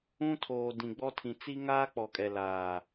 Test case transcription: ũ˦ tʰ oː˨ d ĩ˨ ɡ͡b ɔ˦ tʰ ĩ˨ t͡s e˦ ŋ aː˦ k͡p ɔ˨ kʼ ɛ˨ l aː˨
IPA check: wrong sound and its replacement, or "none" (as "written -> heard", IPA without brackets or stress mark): e˦ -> i˦